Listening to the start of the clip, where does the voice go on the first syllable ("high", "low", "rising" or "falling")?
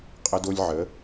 high